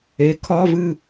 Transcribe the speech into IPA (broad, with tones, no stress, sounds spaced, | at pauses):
e˨˥ kʰ ɒ˧˥˧ v ɨ˥˨